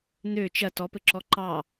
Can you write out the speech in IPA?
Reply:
n̪ø t͡ʃɐ tɔpɘǁɔ ǃɑ

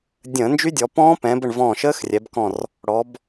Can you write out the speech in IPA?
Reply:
dʲə̃ː˧˩˧nd͡ʒy˦˥dʲɔ˩˧ pɔ̃ː˦˥pɛ̃˩˧bə˧˩ɳ vɔ̃ː˧˩ʃəː˦˥xrʲɛ˩˧bkɔ̃˧˩r | ɽɔ˩˧b

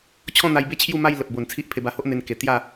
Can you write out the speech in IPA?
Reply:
t͡ɕʰɔ̃˥˧n̪a˧jbe˦ t͡ɕʰju˥˧ma˥˧j lə˨p̚ bo˨˩n t͡sʰi˦ʔpʰe˧ba˧ho˦ʔ n̪e˧nke˨˩ t̪ja˥˧

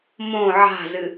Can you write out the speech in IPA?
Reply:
mõ ʕa̤zɨ

